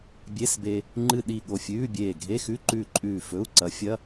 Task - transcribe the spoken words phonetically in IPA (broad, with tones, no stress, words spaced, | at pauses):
bʲe˧˥˧sbe˧ | ŋ͡ǃɨ˧˩ɗi˧˩ ɠo˧˩fʲʉː˧˥˧bʲeː˧˩ ɡʱe˧˥˧xʉ˧˥˧ǃʉː˧˩ ǃʼʉː˧˩fɵ˧˥˧u̯ ǀɐ˨˥fʲɐ˧˥˧